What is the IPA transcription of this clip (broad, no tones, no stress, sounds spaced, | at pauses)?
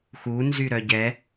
x u n z y ɾ œ ɟ ɛ